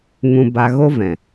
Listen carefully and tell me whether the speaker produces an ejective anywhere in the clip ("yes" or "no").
no